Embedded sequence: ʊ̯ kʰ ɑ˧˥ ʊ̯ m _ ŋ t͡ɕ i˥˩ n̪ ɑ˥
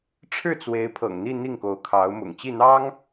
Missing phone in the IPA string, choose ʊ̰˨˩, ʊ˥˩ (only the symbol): ʊ̰˨˩